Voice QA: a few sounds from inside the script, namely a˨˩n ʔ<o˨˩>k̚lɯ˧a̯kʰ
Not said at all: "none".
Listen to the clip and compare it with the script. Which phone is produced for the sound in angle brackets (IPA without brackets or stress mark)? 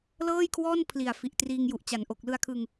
o˨˩